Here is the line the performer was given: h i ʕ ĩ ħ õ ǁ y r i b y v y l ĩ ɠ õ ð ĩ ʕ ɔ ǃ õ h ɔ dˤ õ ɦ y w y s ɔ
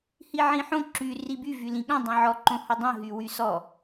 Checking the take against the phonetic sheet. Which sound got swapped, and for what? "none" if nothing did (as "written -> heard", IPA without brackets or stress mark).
ð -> dˤ